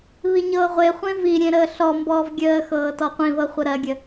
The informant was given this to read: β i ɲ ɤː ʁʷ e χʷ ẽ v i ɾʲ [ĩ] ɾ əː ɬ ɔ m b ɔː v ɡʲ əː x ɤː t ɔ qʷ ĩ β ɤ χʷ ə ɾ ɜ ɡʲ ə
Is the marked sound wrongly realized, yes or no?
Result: yes